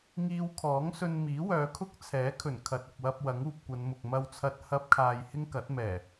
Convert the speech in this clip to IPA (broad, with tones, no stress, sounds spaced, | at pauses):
ŋ iː˧ w kʰ ɔː˨˥ ŋ s ɵ˧ n m iː˨˥ w œː˨˧ kʰ ʊ˥ k̚ t͡sʰ ɛː˨˥ kʰ ɵ˨˩ n kʰ ɐ˨ t̚ ʊ˨ k̚ w ɐ˧ p̚ w ɐ˨˥ ŋ uː˧ p̚ kʷ ɐ˨˧ n m ʊ˨ k̚ m ɐ˧ w t͡sʰ ɐ˧ t̚ h ɐ˥ p̚ kʰ aː˧ j h ɪ˥ ŋ k ɐ˨˥ t̚ m ɛː˨˩